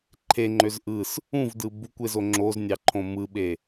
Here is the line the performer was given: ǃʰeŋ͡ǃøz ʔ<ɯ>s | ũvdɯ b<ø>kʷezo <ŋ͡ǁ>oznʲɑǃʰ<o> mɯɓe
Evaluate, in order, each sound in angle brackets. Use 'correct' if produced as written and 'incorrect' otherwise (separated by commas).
correct, incorrect, correct, incorrect